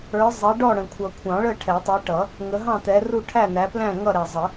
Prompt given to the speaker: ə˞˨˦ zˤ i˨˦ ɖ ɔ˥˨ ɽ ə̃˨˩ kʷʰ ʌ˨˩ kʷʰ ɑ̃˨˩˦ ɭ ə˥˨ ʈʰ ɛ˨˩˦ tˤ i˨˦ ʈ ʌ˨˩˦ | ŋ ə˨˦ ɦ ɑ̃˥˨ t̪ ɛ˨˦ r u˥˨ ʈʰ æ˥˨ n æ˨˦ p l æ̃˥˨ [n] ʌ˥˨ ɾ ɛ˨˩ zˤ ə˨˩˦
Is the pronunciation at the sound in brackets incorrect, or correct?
incorrect